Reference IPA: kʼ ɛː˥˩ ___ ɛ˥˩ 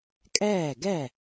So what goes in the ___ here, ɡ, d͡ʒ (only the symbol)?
ɡ